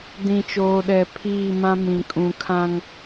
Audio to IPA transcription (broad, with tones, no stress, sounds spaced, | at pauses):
d ĩ˨ t͡ʃ oː˨ ɗ ɛ˨ pʰ iː˦˨ m ã˦ m ĩ˨ kʼ ũ˨ kʰ ã˦ ŋ